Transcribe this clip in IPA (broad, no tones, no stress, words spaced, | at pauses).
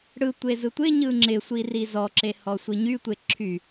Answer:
ɽɯtʷe zɯtʷɪɲɯ ŋ͡ǁɪsʷi rizɔǁe hɔsʷiɲytʷe ǁʰy